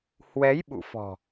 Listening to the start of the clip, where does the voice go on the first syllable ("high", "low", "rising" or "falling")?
rising